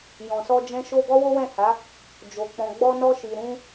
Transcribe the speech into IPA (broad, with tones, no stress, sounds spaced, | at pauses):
j ɔ̃˨ s ɔ˧ d͡ʒ ɛ̃˧ ʃ o˧ ɡ ɔ˦ w o˦ w ɛ̃˦˨ h a˨˦ | d͡ʒ o˨ k͡p ɔ̃˨ ɡ͡b ɔ˧ n ɔ˧ ʃ i˨ ɾ ũ˧